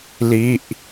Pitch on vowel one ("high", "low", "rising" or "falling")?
falling